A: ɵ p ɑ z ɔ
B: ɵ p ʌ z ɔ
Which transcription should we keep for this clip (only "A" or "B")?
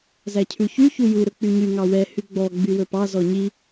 A